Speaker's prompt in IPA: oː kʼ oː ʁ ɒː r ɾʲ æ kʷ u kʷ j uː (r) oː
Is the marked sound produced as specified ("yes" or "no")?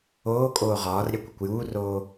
yes